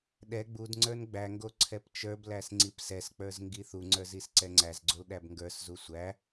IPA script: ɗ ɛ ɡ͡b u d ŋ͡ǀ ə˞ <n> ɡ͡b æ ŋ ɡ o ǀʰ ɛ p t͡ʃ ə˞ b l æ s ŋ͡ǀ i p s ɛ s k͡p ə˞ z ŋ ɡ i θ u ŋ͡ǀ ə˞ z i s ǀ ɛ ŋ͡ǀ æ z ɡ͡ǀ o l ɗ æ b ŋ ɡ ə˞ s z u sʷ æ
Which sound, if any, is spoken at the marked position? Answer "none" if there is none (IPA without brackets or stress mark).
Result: n